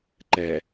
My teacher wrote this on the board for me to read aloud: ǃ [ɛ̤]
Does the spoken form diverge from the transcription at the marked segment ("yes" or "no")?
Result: yes